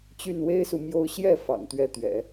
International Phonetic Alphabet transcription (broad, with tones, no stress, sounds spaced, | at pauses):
t͡ɕ y˥˩ n w e˥ ɪ̯ s u˨ m j o˥˧ ʊ̯ ɕ j ɛ˥˩ f ɑ̰˨˩ ŋ t̪ ɥ ɛ˧˥ t̪ ɥ ɛ̰˨˩˦